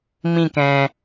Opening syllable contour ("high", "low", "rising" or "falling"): falling